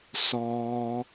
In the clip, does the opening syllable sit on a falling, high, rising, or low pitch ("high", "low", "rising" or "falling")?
high